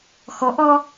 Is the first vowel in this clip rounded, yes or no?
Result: yes